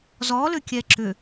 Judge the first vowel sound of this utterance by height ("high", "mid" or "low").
mid